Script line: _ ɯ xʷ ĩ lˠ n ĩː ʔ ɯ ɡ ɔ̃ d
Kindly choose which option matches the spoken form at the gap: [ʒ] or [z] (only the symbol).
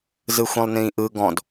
z